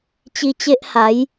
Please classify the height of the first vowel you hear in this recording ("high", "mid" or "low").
high